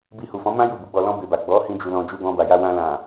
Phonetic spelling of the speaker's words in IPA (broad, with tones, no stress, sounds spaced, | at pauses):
b i˧ h u˨ f ɔ̃˨˦ m ã˦ j u˦˨ b u˨˦ ɡ͡b ɔ˧ l ɔ̃˦ b e˧ b a˨ ɡ͡b ɔ˨˦ h ĩ˧ d͡ʒ u˧ l ɔ̃˧ d͡ʒ u˧ ɡ ɔ̃˧ b a˨ j a˧ w ã˧ l ã˨